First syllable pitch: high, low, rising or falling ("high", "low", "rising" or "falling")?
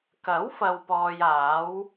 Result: rising